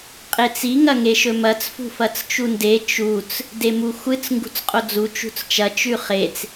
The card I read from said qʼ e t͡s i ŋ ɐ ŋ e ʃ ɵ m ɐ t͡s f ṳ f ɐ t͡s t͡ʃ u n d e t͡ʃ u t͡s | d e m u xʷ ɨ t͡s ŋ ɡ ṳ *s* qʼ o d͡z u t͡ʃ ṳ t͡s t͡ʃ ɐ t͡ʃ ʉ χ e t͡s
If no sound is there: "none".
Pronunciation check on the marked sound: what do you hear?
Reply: t͡s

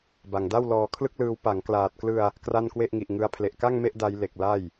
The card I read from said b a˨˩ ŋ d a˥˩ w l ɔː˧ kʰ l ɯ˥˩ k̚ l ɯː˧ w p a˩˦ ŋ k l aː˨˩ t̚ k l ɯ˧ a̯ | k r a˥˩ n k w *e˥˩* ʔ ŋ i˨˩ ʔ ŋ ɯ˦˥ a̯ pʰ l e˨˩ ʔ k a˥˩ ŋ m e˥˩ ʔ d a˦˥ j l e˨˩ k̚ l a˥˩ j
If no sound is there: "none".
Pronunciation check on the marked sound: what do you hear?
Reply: e˥˩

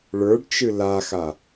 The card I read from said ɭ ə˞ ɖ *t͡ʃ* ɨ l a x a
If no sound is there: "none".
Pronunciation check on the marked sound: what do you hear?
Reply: t͡ʃ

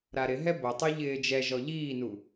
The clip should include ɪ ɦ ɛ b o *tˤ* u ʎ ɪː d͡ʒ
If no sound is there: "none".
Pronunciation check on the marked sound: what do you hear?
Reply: tˤ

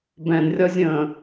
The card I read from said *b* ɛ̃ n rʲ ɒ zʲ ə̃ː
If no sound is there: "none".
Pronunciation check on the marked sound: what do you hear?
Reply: b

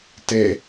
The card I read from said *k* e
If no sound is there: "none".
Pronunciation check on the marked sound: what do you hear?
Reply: t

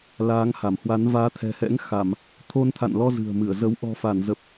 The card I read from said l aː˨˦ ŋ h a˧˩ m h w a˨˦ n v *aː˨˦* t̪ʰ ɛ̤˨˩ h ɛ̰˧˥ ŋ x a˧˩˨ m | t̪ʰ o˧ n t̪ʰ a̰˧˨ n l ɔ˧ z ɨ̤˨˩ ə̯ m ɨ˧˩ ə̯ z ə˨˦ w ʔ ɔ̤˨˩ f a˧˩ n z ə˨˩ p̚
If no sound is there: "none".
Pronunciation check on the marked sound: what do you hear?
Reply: aː˨˦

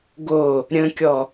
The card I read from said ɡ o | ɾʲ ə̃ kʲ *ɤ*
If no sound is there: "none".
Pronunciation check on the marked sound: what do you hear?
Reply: ɔ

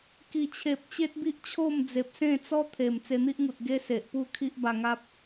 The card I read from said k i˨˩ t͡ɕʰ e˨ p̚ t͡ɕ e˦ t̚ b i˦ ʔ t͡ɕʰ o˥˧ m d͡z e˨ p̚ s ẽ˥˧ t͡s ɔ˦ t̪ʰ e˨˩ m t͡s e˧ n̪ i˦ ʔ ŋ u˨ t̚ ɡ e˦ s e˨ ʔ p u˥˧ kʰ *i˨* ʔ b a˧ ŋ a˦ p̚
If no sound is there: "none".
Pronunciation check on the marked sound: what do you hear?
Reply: i˦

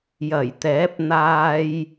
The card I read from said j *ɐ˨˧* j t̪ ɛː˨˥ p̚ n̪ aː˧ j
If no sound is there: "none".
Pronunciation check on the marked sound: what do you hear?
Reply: ɐ˨˩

